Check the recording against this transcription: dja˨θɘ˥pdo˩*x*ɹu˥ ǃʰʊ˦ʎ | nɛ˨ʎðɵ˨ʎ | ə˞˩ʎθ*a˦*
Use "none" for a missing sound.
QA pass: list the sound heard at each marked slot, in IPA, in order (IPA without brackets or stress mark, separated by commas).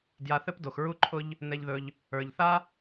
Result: x, a˥